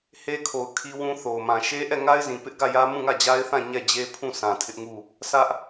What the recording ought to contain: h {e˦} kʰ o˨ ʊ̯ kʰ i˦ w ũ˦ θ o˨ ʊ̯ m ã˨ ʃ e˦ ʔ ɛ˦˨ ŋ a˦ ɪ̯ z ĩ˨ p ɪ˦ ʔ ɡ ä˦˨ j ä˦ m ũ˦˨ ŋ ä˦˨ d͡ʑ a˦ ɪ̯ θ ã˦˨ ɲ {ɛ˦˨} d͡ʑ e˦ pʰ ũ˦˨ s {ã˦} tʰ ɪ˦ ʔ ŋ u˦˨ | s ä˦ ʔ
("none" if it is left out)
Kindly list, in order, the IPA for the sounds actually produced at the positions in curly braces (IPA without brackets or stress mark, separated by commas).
e˦, ɛ˦˨, ã˨